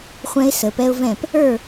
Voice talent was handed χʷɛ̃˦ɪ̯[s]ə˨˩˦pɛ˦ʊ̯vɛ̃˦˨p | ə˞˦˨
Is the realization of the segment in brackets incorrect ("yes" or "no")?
no